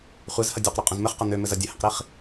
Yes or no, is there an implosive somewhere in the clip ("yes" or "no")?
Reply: no